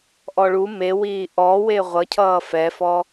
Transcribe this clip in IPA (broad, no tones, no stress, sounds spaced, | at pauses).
ʔ ɔ ɭ u m e w iː ʔ ɔ w e ʁʷ ʌ cʰ ʌː f ɛ f ɔ